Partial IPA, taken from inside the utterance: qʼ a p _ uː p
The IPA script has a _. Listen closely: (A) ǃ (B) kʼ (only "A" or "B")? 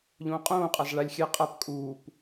B